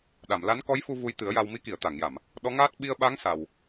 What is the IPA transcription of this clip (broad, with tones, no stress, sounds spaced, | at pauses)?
ɗ a˨˩˨ m l a˧˥ n k ɔ˧˥ j f u˧ v u˧ j t̪ ɨ˨˩˦ ə̯ j a˧ w m i˧˥ k i˨˩˨ ə̯ t̪ a˨˩˨ ŋ j a˨˩˨ m | ɗ ɔ˧˥ ŋ aː˦˥ t̚ ɓ i˧ ə̯ ɓ a˧˥ ŋ s a˨˩ w